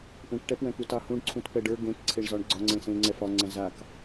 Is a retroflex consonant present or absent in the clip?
present